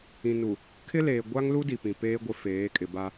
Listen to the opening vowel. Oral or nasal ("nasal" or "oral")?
nasal